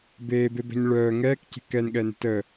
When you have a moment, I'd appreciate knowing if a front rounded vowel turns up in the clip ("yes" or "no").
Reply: yes